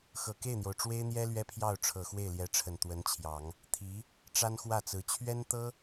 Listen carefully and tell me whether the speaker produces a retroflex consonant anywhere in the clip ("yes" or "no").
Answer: yes